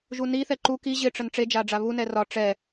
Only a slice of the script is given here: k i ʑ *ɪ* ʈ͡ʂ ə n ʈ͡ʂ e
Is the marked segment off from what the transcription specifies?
no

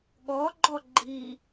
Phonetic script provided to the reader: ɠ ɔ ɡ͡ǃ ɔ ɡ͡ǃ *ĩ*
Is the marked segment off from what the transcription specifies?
yes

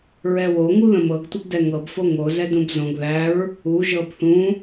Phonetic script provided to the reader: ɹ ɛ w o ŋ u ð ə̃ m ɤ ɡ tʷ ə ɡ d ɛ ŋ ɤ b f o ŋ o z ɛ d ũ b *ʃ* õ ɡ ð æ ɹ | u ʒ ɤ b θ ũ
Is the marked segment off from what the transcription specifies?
yes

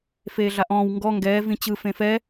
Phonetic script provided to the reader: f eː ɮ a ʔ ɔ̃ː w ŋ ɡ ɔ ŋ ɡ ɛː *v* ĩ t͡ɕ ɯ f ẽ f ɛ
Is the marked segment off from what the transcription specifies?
no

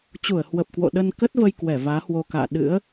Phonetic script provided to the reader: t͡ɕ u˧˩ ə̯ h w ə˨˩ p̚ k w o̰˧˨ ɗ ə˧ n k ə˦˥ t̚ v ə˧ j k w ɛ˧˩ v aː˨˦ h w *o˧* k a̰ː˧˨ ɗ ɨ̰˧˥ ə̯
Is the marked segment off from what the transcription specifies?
no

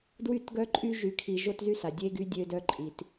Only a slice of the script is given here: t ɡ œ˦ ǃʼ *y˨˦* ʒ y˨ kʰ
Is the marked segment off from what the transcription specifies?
yes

